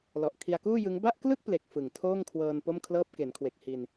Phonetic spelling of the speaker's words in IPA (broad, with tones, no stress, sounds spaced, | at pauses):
l ɔ˨˩ ʔ kʰ i˧ a̯ k uː˥˩ j ɯ˦˥ ŋ b a˥˩ ʔ k l ɯ˥˩ k̚ p l e˨˩ k̚ f ɯ˨˩ ŋ tʰ oː˥˩ ŋ kʰ w ɤː˧ n p o˥˩ m kʰ l ɤː˥˩ p̚ k e˩˦ n kʰ w e˨˩ k̚ h i˧ n